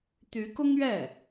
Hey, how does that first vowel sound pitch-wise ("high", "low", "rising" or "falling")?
rising